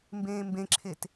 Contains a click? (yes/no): yes